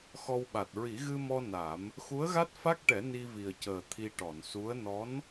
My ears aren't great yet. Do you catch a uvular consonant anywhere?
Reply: no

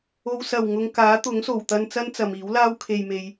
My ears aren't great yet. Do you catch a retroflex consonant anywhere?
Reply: no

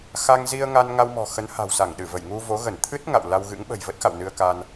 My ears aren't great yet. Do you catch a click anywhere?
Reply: no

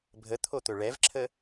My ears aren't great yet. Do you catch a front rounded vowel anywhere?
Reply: no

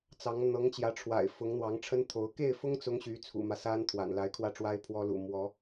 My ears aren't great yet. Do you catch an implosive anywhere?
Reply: no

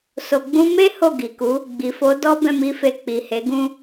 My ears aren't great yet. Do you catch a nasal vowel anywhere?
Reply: yes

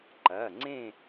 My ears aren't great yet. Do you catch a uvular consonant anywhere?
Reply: no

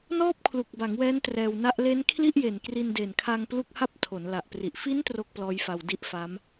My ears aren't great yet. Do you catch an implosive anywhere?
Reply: no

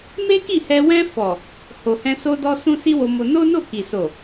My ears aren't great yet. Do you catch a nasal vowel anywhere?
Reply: yes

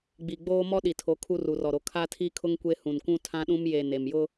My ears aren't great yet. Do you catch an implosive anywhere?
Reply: yes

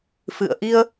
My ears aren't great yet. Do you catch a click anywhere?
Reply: no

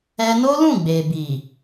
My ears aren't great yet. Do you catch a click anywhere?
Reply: no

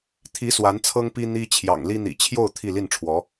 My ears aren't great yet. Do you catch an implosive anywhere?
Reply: no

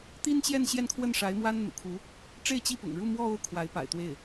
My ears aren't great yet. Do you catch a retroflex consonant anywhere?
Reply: yes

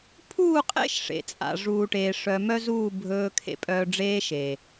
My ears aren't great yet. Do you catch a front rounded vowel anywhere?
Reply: yes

